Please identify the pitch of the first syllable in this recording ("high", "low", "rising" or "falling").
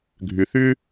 low